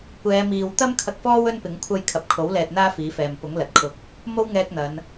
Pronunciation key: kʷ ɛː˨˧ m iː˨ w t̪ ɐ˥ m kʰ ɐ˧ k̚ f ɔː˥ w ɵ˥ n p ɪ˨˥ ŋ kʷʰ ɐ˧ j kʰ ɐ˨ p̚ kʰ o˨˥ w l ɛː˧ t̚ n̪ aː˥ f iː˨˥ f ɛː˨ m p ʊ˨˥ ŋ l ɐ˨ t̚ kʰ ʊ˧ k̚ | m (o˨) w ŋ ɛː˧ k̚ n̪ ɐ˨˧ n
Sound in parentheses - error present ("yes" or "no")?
yes